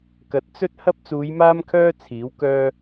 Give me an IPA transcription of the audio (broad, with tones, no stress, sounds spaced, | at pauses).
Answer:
k ɐ˨˥ t̚ t͡s ɵ˥ t̚ h ɐ˥ p̚ t͡s uː˨˧ j m aː˥ m kʰ œː˥ t͡sʰ iː˨˥ w k œː˥